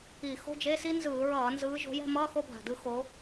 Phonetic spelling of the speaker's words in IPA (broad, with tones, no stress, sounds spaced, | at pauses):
i˧˩˧ x o̤˧˥˧ d͡ʒ e˧˥˧ s i˥ n z ɯː˧˩˧ ɹ ʌː˧˩˧ n z ɯː˨˦ ʒ o̤˨˦ j ɛ̤˥˧ m ʌː˧˥˧ x o˥˧ bʱ a̤˨˩ d ɯ˥˧ x oː˨˦